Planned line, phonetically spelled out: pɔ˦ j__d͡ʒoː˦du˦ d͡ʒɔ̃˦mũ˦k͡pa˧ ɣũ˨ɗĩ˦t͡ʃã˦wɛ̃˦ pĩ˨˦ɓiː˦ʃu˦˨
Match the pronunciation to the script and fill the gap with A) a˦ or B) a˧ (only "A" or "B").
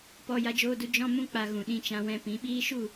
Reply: A